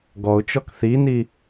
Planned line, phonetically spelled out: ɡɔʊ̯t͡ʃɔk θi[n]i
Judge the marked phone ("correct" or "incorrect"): correct